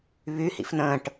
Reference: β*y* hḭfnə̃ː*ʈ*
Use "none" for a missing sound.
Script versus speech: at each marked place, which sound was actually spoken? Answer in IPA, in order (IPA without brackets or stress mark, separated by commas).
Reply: y, ʈ